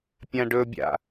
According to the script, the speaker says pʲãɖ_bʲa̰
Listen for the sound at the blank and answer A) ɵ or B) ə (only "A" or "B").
A